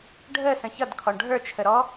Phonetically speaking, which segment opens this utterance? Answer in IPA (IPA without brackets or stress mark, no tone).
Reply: ɖʱ